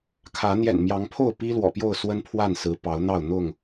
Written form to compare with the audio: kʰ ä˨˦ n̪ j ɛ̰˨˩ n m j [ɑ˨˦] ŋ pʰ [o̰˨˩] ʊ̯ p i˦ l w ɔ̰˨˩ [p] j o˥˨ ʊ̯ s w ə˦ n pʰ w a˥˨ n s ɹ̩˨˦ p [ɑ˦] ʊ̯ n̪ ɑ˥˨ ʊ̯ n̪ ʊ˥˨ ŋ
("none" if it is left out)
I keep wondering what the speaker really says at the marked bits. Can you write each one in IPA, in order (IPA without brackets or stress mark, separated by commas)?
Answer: ɑ˨˦, o˥˨, p, ɑ˨˦